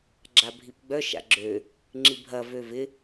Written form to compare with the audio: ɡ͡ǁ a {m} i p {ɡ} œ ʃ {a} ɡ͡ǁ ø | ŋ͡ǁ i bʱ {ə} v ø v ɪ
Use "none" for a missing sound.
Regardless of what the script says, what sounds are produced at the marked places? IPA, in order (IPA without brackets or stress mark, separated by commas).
bʱ, ɡ͡b, a̰, ɐ